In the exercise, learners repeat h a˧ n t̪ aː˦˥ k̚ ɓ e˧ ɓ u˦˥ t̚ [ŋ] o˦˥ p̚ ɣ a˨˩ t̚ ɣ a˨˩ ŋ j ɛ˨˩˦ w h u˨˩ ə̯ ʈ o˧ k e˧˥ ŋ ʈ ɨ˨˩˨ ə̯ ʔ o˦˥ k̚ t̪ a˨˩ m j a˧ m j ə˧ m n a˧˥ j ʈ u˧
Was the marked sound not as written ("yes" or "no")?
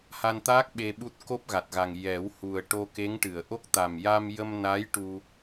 yes